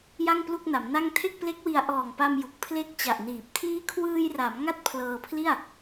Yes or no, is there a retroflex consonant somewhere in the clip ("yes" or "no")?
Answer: no